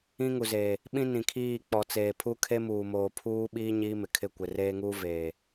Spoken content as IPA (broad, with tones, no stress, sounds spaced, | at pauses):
ĩ˦ ŋ u˨ z eː˨ | ɓ ĩ˦ n ĩ˨ kʰ iː˦˨ k͡p ɔ˨ t͡s eː˨ pʰ u˦ kʰ e˦ m uː˨ m oː˨ pʰ uː˦ ɓ iː˦ ɲ iː˦ m ɪ˨ kʰ ɪ˦˨ kʷ ɪ˨ r eː˦ ŋ uː˦ v eː˨